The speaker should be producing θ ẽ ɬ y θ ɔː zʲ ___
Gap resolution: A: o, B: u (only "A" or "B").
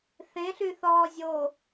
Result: A